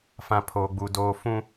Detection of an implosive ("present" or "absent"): absent